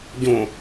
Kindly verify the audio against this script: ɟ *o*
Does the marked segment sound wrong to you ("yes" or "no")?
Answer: yes